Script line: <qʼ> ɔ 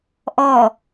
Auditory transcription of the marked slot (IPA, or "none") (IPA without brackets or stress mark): ʔ